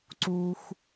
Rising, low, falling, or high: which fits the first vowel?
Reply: low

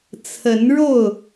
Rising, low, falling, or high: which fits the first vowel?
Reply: rising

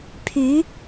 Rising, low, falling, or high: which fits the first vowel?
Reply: rising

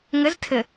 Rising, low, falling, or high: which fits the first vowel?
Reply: rising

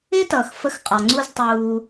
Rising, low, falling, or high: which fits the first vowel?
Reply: high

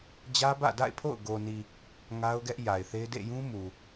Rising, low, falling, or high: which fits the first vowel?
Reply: high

